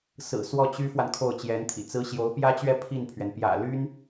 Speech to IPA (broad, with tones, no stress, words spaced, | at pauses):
sɹ̩˨˩ swɔ˥˩t͡ɕy˥fwa˨n kʰo˥˩ʊ̯t͡ɕjɛ˧˥nt̪ʰḭ˨˩t͡sɹ̩˥ ɕjo˧˥ʊ̯pjä˥t͡ɕɥɛ˥˧ pʰi˥˩npʰɥɛ˩n pjä̰˨˩ly˥n